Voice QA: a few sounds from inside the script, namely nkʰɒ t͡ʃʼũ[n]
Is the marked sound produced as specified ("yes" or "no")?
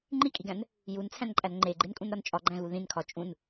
yes